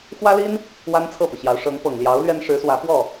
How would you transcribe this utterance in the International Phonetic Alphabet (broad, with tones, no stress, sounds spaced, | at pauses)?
x w ä˥ l i˥ n | w a˥ n t͡sʰ ɤ˥˩ p ɤ˩ ɕ j ɑ˧˥ ʊ̯ ʂ ɤ˧˥ ŋ p ɤ˨˩ ŋ l j ɑ˧˥ ʊ̯ l ɥ ɛ˥ n ʂ ɻ̩˧˥ s w ä˧˥ p w ɔ˥˩